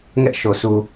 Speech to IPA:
ŋɛ˦ʔʃo˨ sʰu˨

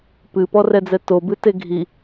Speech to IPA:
pɨpɔrɛd͡zɛ tobɨte ɡʱi

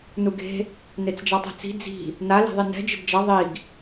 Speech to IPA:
nuɡe̤ | net͡sd͡ʒatˤɛ̤t͡si̤ d͡zi̤ | na le̤ðˤinɛ̤ d͡ʒɪdd͡ʒʌ ðˤiɡ

